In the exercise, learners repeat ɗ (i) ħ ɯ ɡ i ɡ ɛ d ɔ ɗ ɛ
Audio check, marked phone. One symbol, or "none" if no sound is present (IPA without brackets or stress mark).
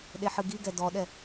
e